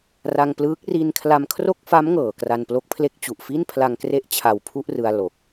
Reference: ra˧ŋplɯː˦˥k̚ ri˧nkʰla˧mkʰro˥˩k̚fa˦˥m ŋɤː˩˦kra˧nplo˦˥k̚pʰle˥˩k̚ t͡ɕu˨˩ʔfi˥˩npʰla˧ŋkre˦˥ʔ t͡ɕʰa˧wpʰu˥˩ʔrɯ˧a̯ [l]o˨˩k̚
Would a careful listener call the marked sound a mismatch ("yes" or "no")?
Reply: no